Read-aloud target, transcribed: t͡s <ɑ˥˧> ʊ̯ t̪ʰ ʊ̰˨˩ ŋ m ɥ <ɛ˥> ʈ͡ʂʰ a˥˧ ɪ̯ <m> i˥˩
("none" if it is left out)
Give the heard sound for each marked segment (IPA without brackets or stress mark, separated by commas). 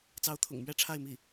ɑ˧˥, ɛ˥, m